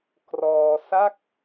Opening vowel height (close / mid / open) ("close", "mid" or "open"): mid